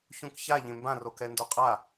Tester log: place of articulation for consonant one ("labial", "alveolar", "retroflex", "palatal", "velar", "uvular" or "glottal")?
palatal